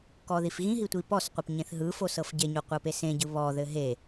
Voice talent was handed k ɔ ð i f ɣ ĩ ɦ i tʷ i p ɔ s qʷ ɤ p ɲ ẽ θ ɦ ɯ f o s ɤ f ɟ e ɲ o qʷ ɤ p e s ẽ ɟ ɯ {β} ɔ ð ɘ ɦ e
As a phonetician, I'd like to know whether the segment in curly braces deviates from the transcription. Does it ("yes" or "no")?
no